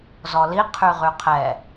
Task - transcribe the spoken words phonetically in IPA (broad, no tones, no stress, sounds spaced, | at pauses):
z ɔ l i qʰ y ʁ y qʰ ɛ